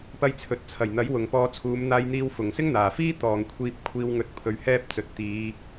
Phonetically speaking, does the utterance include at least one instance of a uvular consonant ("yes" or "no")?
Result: no